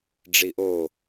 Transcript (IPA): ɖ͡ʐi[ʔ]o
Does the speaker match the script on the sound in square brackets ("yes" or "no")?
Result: yes